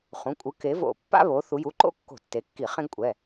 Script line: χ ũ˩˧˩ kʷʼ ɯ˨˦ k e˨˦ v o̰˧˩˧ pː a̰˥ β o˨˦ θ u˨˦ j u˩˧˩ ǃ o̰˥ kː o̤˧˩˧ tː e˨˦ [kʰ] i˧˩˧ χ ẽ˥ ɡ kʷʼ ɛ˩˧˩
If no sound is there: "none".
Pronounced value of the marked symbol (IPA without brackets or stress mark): kː